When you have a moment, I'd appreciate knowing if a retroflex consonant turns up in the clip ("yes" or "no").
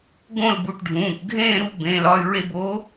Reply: yes